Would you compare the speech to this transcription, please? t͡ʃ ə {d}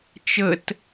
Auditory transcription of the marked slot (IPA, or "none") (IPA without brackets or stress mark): t